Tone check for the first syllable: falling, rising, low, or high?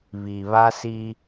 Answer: low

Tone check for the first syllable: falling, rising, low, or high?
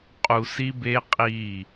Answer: low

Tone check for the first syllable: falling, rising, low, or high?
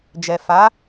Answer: low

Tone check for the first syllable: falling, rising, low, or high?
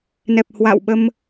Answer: low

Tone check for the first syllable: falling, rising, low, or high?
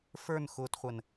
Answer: falling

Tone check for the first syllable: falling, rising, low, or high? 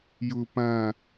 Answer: low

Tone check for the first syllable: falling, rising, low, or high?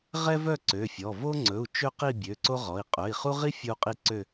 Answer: high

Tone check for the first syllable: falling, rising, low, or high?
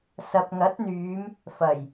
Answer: low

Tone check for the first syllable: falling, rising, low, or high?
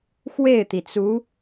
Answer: falling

